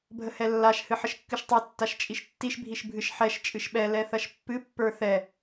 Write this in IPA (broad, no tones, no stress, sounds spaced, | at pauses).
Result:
bʱ ə h ɛ lː a ʃ h ɨ ħ ə ʃ kː ɨ ʃ tˤ ə˞ tː a ʃ t͡ʃʼ i ʃ tː i ʃ bʱ i ʃ bʱ ɨ ʃ ħ ɛ ʃ t͡ʃʼ ɨ ʃ ɓ ɛ l ɛ θ ɐ ʃ pː ɨ pː ə˞ θ ɛ